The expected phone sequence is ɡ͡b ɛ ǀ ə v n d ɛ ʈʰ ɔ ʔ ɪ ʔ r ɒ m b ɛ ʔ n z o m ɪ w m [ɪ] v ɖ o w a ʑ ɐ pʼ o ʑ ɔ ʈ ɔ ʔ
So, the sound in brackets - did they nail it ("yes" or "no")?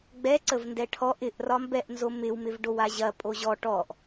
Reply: yes